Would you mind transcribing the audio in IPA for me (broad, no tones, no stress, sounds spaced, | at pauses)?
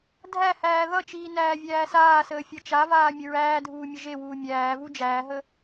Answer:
dʱ æ h æː ð ʌ t͡ʃ iː n æː vʲ æː s aː s əː fʲ ʌ t͡ʃ a v aː mʲ ə ɹ æː dʱ uː mʲ ə ʒ e w uː mʲ æː v u d͡ʒ æː ɦ ə